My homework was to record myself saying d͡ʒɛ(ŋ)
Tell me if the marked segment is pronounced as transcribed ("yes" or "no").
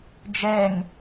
yes